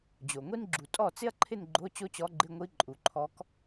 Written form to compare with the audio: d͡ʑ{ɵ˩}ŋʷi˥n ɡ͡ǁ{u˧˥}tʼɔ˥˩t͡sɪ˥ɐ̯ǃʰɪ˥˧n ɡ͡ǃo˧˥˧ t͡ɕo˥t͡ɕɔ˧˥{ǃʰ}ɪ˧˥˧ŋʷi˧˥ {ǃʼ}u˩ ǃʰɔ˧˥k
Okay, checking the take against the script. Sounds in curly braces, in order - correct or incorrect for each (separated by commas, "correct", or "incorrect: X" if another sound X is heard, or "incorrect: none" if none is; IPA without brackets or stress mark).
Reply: incorrect: o˩, incorrect: u˩, incorrect: ɡ͡ǃ, correct